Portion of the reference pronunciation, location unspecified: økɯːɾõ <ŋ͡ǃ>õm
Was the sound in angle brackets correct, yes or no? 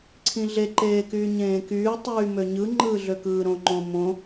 yes